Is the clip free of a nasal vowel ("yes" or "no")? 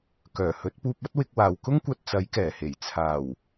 yes